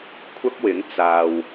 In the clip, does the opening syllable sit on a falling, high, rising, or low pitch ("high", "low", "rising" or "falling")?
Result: high